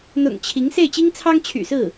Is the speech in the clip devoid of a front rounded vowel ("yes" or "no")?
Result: no